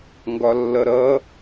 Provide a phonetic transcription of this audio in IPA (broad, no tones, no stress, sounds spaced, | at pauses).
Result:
ŋ ɡ ɒ lː ʌ ɾ ʌ